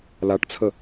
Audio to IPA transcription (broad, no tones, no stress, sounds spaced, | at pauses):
l a ʈ t͡sʰ ə